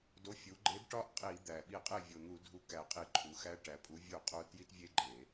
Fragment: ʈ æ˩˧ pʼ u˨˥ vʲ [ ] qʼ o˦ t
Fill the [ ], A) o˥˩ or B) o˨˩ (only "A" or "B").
A